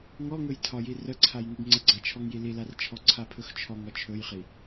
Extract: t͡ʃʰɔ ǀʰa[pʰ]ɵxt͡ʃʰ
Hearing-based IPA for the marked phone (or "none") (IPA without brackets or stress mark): pʰ